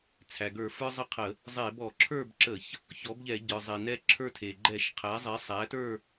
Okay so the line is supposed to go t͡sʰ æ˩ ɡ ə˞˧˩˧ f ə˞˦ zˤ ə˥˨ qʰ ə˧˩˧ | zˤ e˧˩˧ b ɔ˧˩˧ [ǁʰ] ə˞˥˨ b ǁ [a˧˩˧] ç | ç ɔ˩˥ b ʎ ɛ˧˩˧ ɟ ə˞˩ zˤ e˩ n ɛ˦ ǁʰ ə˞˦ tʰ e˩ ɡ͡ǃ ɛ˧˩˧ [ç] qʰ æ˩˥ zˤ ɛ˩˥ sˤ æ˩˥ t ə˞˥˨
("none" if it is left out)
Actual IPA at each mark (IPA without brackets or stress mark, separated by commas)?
ǁʰ, ə˧˩˧, ʃ